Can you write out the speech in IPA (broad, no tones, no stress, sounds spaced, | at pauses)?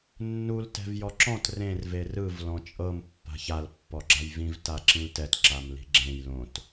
nː u l t ɛ̤ v j ɔ ǁ ɔ̃ t r ẽ r v e r ɯ v l ɔ̃ t͡ʃʼ ɤ m pː a̤ ç a l pː ɔ ɡ͡ǁ a j v ĩ v t a ǁ ĩ l t ɛ t ǁ a m l i̤ ɡ͡ǁ ẽ j l õ t